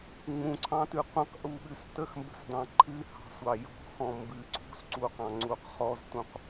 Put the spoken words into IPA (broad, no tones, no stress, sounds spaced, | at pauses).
ŋ͡m ũ ǀʰ ɑ̃ t ʉ qʷ ə̃ q ʔ u ɓ ʉ s t ə x m b ə̤ s d ɑ̃ ǃʰ ɨ h ɑ̤ sʷ ɑ j ɔ̤ x ɔ̃ m b ɨ ǀʰ ṳ s ǀ u q ɑ̃ ŋ͡ǀ u q χ ɔ z t ũ q